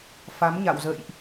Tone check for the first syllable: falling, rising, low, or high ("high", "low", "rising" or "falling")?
rising